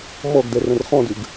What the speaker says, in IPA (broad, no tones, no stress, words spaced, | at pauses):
mɔɡdɛ rə̃rχɔ̃dʉɡ